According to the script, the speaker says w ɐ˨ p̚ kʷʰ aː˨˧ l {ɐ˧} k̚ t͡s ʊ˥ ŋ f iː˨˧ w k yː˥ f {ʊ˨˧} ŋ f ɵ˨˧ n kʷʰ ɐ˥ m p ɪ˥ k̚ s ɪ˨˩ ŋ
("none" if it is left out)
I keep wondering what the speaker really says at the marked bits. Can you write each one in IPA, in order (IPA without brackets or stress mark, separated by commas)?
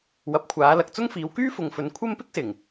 ɐ˨, ʊ˨